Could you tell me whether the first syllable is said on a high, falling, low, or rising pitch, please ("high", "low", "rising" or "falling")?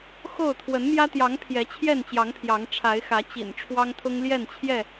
falling